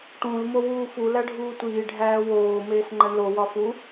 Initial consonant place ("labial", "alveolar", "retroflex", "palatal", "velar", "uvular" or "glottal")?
retroflex